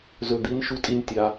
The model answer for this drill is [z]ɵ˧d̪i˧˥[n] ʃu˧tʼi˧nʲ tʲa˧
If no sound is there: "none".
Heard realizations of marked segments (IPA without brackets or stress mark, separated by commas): z, n